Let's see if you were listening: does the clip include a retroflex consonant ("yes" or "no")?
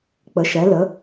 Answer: no